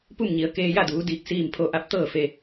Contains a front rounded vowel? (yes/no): no